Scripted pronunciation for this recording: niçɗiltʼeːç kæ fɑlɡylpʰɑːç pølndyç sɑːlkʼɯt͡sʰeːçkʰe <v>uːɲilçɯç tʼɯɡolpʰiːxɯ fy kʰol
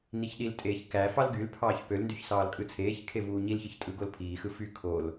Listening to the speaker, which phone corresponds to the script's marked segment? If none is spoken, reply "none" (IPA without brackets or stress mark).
v